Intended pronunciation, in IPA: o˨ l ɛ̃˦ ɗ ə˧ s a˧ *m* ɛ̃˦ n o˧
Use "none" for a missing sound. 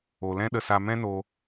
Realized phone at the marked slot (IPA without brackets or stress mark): m